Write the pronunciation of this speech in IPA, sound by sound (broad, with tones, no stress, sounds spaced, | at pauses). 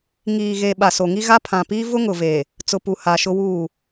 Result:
ŋ iː˨ ɣ e˨ ɓ a˨ s o˨ ŋ i˦ ɣ a˦ pʰ ã˨ p iː˦ v ʊ˦ ŋ ʊ˨ v e˨ | t͡s ʊ˨ p u˨ h a˨ ʃ ʊ˦ w uː˦˨